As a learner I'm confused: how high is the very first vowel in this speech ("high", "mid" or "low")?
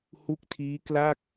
high